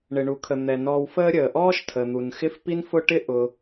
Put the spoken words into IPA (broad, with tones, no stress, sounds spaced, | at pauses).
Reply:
ɳ ɪ˩ ɳ u˩ kʰ ə˩ n̪ ɛ˩ n ɔː˨ w f əː˦ ɾʲ əː˩ ʔ ɔː˥ ʃ tʰ ə˩ n̪ u˩ n x ɪ˥ f p i˥ n f ʊ˥ ʈ ɪ˥ ʔ ʊ˨